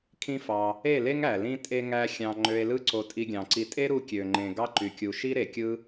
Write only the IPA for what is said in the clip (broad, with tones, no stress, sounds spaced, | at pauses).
kʰ ĩ˦ f ɑ˧ | e˦˨ l e˦ ŋ æ˨ l ĩ˦ tʼ e˦ ŋ æ˦ xʲ ɑ̃˧ ŋ͡ǃ ø˧ e̯ l ɯ˦ ǀ o˧ tʼ i˧ ɡʲ ɑ̃˨ ǀ i˧ tʼ e˦ ɾ u˧ kʲ ø˨ ŋ͡ǃ ẽ˨ ɡ ɑ˦ ǃ y˨ kʲ u˨ ʃ i˦ ɾ e˨ kʲ ɯ˦